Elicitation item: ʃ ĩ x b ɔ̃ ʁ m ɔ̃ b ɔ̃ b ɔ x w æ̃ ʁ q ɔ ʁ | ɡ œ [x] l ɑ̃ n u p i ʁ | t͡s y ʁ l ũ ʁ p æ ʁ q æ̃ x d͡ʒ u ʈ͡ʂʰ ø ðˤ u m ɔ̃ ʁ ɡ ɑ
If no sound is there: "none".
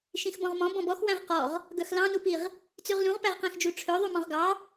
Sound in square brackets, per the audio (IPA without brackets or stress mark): x